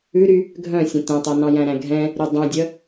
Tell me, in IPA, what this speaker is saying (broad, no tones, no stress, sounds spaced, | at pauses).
ʉ ɾ y | ɡʱ œ̃ sʲ œ̃ t ɛ̃ tˤ o n ɑ̃ j æ̃ ɾ æ̃ ɡʱ ɛ̃ | ɾ y dˤ ɛ̃ dʲ œ